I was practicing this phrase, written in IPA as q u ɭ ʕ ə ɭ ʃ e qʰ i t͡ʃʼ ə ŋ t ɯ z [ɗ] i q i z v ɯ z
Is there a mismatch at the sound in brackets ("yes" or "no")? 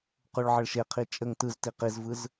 yes